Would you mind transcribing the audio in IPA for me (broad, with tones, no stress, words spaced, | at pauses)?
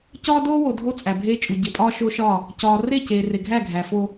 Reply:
cɒː˦doː˦wo˨ dʱo˦ t͡sʼæ˨bʱeː˦t͡ʃʼu˨ ɟe˨pʼɒː˦ ʃoː˦ʃɒː˦˨ | cɒː˨re˦˨ceː˨ re˨ɡʱæ˦˨ ɡʱæ˨fo˦